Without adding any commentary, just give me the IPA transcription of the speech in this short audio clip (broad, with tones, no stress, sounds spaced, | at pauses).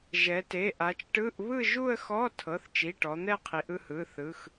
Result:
ʒ ɛ˩˧ t e˩˧˩ ʔ a˩˧ t͡ʃ ʈ ɯ˧˥˧ ʔ β ɯ˥˧ ʒ u˥˧ ə̯ x ɔ˧˥˧ tʰ ɤ˩˧˩ θ t͡ʃ i˩˧˩ ʈ ɔ˩˧ n̪ ɛ˥˧ qʰ i˩˧ ʔ ɯ˥˧ h ɯ˩˧˩ θ ɯ˩˧˩ x